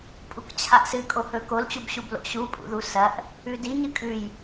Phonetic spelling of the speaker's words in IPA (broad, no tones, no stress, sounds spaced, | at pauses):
pʼ u k t͡ɕʰ a ʔ s ɨ kʼ o h ɵ k o l t͡ɕ u b ɕ u b l o̰ ɕ u pʼ ṵ ð u s ɐ ʔ | ʉ d i ɲ ɨ kʼ ʉ j